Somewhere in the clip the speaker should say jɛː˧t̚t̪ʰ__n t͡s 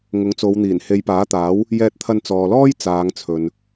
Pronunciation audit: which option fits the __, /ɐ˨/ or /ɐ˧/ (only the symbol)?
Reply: ɐ˧